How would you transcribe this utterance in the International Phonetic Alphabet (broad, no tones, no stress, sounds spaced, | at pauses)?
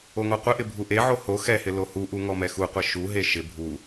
o ŋ ɔ qʷ ɪ ʔ ɪ bʱ u ʔ e ʕ o h o x ɛ h ɪ l o h u ʔ u ŋ ɔ m ɛ x u qʷ e ʃ u ɦ e ʃ ɪ bʱ u